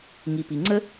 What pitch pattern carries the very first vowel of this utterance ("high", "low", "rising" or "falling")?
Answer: low